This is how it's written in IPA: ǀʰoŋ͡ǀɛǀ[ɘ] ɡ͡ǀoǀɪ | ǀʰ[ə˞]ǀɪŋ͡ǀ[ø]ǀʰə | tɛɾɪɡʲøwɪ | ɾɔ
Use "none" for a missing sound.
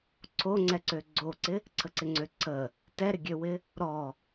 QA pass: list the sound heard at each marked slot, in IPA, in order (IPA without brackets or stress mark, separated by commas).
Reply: ø, ə, ø